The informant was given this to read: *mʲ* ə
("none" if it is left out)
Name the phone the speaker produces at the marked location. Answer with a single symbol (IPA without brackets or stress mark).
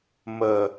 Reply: m